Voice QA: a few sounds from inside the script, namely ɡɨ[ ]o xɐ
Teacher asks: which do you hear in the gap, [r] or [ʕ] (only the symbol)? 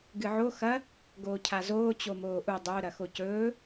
ʕ